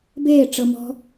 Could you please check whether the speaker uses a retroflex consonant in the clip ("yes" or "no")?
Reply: yes